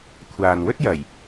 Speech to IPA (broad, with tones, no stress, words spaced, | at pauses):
kʷʰaː˨n wɵ˥t̚jɐ˨˩j